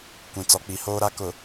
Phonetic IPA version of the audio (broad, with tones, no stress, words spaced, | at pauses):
kʷĩ˨t͡sɔ˨k͡pi˨hoː˦ ɾa˦kʊ˨